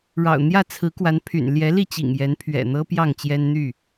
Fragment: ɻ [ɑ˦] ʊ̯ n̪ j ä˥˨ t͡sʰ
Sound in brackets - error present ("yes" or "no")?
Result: yes